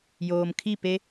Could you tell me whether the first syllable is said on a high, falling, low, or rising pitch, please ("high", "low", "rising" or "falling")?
low